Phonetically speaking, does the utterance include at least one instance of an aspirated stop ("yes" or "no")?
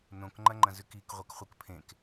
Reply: yes